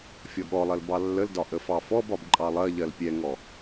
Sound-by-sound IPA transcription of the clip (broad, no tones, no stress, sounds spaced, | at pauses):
fʲ ɔ ɠ ɔ lˠ ɜ l b ɑ lː ə l d ɒ ʔ ə f ɑ f ɔ b ɒ b ǃʼ ɑ lˠ ɜ ʎ ɜ l pʲ ɛ ŋ ɔ